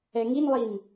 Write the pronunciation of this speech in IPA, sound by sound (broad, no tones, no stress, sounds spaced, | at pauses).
ɛ ŋ i n lˠ i n